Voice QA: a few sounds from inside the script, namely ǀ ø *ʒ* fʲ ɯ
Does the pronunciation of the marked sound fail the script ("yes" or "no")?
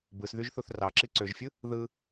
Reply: no